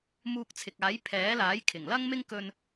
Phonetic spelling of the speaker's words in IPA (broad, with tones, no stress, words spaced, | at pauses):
muː˧k̚t͡sʰɪ˨k̚aː˨˥j pʰɛː˨˥laː˨˥j kʰɪ˨˩ŋlɐ˥ŋmɪ˥ŋ kɵ˧n